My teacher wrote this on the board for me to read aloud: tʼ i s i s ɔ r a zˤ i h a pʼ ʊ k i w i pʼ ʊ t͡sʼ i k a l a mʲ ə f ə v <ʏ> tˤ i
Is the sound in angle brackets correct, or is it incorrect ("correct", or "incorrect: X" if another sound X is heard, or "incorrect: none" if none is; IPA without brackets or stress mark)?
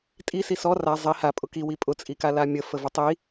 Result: correct